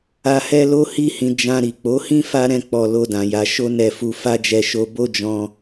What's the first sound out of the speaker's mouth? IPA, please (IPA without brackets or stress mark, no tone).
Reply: a